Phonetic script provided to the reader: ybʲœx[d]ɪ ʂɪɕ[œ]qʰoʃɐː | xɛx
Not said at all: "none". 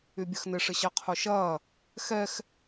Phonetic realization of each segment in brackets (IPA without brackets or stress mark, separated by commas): n, ɛ